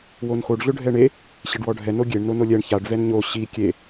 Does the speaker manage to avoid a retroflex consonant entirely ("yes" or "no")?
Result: no